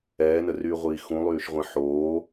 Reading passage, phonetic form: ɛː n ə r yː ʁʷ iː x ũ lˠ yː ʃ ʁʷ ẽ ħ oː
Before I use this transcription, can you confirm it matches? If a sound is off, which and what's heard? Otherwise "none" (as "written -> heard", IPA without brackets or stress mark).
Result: none